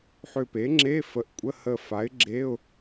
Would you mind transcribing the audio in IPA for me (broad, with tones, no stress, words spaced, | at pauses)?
ħʏ˧˩pe˩˥ŋ͡ǁe˧˥˧ fə˩˥ʔkʷʼə˧˥˧hə˧˩ fa˩˥ɪ̯ɡ͡ǁe˧˥˧ʊ̯